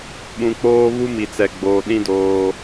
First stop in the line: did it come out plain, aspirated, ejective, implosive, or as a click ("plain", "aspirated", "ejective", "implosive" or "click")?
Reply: implosive